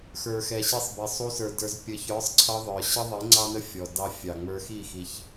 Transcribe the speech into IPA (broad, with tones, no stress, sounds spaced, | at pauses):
x ə˞˨ x ɛ˨ ɕ i˧ sˤ b ɛ˨ sˤ u˧ s ə˞˨ d ə˞˧ z pʲ ə˨ ç ə˞˨˦ sˤ ǀʰ ʌ˧ ðˤ ə˞˨ ɕ ə˦ ðˤ i˨˦ ŋ͡ǀ ɑ˦ n ə˦ fʲ ɔ˨ d ɑ˧ fʲ ɑ˨ ŋ͡m ə˞˧ x i˦˨ x i˧ ç